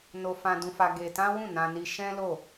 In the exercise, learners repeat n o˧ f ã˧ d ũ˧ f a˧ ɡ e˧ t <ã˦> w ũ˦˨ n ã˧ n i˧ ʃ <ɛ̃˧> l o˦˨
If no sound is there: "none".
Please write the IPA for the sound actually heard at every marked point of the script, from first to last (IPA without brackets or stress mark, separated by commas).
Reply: ã˦, ɛ̃˦